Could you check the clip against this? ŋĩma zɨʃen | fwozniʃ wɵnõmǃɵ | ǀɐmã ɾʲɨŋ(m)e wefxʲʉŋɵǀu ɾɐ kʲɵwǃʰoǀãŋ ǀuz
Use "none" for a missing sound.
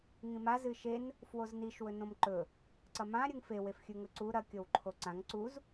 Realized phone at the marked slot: f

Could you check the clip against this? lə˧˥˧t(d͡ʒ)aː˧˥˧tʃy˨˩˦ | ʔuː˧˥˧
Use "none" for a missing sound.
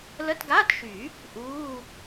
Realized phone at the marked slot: ɡ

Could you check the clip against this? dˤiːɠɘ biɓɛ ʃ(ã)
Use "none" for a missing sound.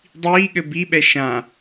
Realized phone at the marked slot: ã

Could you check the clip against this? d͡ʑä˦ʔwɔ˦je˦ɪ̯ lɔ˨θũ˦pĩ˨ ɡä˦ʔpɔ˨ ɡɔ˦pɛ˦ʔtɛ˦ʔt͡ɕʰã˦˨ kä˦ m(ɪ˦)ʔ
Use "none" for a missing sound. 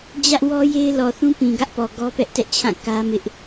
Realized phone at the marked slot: ɪ˦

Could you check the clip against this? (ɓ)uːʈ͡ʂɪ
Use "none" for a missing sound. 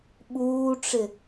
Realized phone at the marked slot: ɓ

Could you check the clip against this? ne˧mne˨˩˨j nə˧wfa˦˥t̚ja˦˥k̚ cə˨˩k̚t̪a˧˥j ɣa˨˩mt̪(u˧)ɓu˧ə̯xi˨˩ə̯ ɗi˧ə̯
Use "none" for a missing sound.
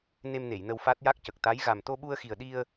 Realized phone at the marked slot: o˧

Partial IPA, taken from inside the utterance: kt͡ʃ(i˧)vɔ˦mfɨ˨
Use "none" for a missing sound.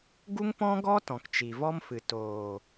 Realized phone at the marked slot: i˨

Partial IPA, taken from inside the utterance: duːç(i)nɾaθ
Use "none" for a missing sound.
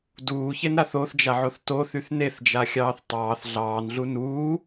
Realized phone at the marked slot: e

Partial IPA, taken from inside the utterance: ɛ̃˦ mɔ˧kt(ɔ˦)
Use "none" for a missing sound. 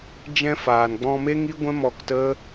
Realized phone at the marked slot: ə˦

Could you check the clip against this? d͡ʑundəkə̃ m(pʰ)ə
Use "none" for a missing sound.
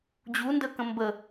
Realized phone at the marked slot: b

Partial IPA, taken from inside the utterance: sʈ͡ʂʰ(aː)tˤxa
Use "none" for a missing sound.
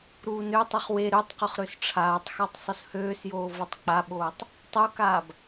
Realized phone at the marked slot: aː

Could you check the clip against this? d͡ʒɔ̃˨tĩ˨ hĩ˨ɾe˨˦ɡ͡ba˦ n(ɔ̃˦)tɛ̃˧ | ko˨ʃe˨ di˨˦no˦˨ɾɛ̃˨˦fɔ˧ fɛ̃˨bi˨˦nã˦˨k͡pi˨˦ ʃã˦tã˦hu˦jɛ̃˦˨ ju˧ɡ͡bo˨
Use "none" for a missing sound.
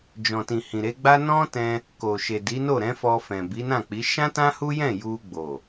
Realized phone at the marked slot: ɔ̃˦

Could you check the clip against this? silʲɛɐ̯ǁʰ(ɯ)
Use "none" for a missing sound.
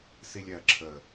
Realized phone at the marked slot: ə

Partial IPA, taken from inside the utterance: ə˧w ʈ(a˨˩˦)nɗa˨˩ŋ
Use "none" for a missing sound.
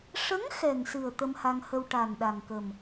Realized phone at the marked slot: a˨˩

